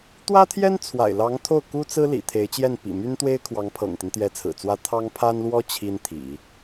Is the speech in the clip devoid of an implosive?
yes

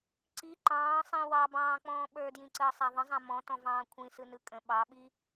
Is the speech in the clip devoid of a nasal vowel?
no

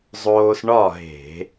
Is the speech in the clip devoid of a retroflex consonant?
no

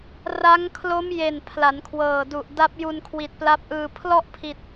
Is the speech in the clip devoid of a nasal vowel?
yes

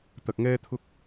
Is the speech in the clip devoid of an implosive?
yes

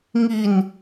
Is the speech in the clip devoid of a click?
yes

